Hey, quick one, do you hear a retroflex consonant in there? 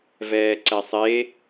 no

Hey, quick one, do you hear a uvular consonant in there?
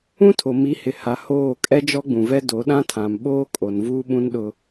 no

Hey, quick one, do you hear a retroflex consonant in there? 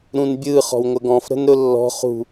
no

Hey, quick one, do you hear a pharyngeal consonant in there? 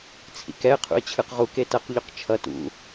no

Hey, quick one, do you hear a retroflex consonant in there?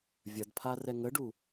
yes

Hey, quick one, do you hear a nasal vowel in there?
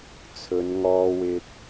no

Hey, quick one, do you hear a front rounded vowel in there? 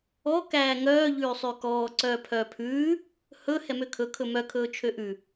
yes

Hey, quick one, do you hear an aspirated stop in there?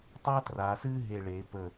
no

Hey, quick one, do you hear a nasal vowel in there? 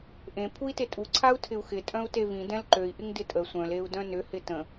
yes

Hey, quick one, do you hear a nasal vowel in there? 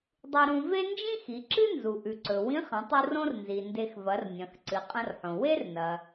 yes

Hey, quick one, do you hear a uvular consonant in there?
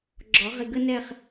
yes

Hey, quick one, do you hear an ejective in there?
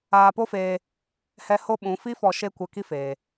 no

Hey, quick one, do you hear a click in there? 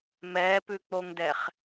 no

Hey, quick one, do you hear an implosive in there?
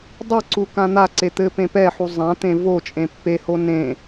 no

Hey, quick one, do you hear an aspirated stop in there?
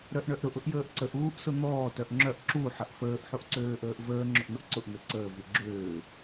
no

